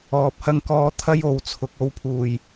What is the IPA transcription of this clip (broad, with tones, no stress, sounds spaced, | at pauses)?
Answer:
ɔː˨ p̚ h ɐ˧ ŋ k ɔː˧ t̪ʰ ɐ˥ j o˨˧ w t͡sʰ ʊ˨˥ k̚ o˨˥ w pʰ uː˨˩ j